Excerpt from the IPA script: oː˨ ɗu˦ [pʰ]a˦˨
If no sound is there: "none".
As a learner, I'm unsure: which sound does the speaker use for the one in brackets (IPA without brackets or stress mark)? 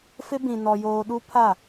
pʰ